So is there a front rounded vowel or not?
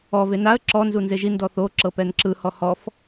no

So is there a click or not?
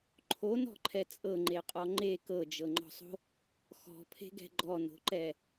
yes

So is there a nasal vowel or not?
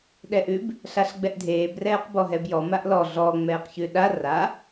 no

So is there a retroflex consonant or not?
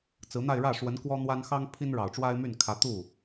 yes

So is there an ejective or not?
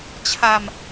no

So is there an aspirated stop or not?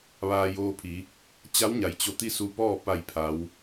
yes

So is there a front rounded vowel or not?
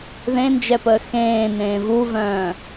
yes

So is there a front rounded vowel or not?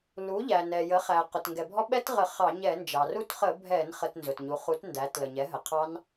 no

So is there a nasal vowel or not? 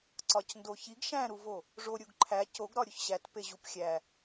yes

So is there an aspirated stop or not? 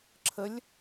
yes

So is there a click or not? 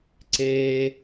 yes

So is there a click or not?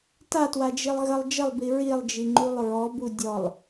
yes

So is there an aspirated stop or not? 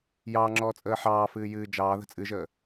no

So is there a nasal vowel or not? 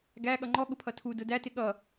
no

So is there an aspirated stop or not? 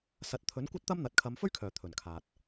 yes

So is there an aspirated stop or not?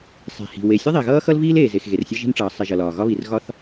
no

